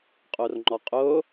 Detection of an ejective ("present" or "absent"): present